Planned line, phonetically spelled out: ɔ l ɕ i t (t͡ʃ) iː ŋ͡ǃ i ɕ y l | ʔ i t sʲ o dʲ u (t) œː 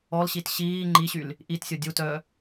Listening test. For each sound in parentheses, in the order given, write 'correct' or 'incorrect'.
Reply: incorrect, correct

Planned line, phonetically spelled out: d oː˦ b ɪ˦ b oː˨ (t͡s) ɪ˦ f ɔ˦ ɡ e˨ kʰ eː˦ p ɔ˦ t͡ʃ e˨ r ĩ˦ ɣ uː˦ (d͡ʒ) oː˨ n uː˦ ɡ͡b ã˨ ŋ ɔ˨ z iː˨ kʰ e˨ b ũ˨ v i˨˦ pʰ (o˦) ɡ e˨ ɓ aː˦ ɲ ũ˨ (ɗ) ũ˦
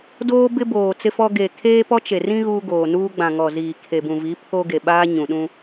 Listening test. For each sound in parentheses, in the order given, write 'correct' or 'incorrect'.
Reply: correct, incorrect, correct, correct

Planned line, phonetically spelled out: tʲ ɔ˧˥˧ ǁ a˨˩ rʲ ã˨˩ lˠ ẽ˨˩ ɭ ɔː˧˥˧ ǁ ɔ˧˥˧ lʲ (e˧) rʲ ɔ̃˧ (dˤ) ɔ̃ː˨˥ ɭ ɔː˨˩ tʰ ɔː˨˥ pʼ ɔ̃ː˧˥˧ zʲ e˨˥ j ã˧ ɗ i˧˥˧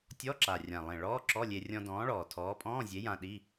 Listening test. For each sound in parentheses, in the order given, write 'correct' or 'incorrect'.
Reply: correct, incorrect

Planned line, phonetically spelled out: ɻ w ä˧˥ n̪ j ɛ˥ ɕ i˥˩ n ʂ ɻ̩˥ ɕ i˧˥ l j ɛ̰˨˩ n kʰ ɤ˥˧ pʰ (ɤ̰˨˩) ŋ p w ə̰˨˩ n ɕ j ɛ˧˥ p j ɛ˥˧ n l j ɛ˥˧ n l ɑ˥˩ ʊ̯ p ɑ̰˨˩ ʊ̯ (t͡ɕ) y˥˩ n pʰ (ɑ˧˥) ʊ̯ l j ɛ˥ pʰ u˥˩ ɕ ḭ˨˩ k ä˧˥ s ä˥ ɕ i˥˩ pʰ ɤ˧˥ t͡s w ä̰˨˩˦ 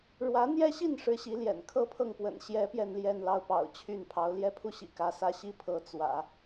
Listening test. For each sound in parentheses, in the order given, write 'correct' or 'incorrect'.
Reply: incorrect, incorrect, correct

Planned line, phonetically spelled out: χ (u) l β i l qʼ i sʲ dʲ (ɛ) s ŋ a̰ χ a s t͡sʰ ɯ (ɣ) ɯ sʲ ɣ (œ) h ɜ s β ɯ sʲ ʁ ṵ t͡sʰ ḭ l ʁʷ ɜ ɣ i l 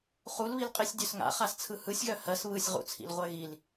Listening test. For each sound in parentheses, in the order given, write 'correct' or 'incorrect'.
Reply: correct, incorrect, incorrect, correct

